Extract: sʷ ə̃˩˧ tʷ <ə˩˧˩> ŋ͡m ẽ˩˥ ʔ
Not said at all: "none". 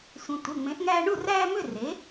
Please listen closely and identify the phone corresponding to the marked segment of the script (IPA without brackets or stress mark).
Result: ə˩˧˩